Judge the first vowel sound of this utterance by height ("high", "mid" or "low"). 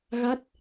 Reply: low